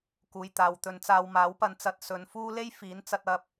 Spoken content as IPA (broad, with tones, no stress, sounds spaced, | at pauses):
k uː˨ j t̪ aː˨ w t̪ ɵ˨ n t͡s aː˧ w m aː˨˥ w p ɐ˧ n t͡s ɐ˧ t̚ s ɵ˨˧ n f uː˥ l e˥ j f iː˨˥ n t͡s ɐ˨ t̚ ɐ˧ p̚